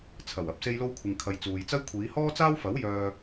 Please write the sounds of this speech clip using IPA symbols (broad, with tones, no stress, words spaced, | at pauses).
t͡sʰɐ˨˩w ɐ˨p̚ se˧jlo˧wkʷʰɪ˨ŋkʰɐ˨j t͡suː˨jt͡sɐ˥j kʷʰiː˨˧hɔː˥t͡saː˥wfɐ˨˥w jœː˧